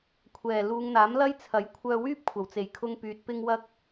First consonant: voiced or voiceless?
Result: voiceless